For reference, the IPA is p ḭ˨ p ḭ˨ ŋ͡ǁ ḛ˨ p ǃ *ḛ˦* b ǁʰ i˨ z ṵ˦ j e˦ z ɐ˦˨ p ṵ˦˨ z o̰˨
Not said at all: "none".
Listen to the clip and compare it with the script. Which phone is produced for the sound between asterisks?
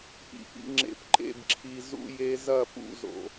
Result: ḛ˦˨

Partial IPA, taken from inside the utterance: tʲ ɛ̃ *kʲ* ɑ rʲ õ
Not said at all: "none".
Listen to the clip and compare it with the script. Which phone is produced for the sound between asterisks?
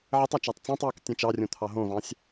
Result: t͡ʃ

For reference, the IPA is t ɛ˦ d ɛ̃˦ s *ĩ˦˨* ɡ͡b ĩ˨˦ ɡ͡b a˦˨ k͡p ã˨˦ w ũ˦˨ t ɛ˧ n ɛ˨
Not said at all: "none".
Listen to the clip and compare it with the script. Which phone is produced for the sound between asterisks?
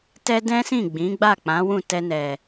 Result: ĩ˦˨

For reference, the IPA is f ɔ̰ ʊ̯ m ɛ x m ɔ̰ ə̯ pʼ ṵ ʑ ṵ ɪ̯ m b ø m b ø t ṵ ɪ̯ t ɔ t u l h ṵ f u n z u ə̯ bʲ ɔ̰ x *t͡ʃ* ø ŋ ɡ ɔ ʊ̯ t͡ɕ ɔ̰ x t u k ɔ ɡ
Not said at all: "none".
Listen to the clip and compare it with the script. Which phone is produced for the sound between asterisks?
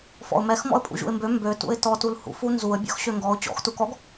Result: ɕ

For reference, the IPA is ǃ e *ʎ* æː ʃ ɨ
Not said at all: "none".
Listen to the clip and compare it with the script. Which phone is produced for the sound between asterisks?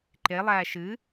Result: lˠ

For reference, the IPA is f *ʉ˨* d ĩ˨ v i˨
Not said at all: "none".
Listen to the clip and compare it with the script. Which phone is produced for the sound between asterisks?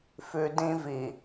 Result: ʉ˨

